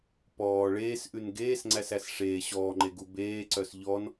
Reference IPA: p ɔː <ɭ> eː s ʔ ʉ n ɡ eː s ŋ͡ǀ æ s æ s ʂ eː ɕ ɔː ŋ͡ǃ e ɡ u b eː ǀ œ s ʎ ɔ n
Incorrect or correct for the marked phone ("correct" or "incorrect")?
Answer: correct